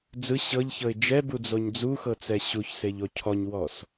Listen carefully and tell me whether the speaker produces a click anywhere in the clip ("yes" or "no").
no